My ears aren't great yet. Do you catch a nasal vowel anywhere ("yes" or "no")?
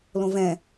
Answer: yes